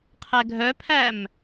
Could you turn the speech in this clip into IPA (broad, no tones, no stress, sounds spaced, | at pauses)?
qʰ ɛ ɡʱ œ pʰ æ m